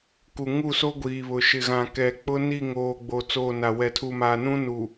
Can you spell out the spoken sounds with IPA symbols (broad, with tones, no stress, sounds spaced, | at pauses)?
k u˨ ŋ u˦˨ s o˦ ɡʷ iː˨ β ʊ˨ ʃ ɪ˨ ɣ ã˨ k ɛ˨ k͡p ʊ˦ n i˦˨ ŋ oː˨ ɡ͡b o˨ t͡s oː˦˨ n a˨ w ɛ˨ tʰ u˨ m aː˨ n ũ˦ n u˨